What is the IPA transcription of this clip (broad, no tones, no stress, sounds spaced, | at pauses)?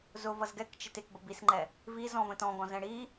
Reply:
z ʊ v ʌ z ɡ ɛ k t͡ʃ ɪ t ɪ k b ə b i s ŋ͡ǃ ɛ | v i z ɔ̃ v ə̃ t ɔ̃ ɡ ɔ̃ z ɛ̃ ɽ i